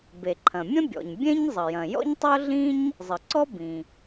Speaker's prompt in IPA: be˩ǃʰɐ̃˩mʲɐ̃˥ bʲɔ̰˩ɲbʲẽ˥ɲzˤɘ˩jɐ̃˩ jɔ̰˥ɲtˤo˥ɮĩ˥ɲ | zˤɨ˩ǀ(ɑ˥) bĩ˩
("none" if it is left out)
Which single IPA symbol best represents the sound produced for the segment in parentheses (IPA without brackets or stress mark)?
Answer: ɔ˥